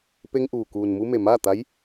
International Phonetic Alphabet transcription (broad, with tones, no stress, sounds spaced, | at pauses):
p e˧ ŋ ʔ uː˩ k uː˩ n m u˧ m e˩ m aː˥˨ t̪ a˧˥ j